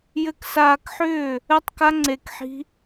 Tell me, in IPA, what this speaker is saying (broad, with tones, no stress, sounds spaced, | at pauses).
j ɘ˧ k s aː˧ k ħ ʏː˦˨ | ɘ˦ tˤ k a˦ ŋ͡ǀ e˧ k ħ i̤˦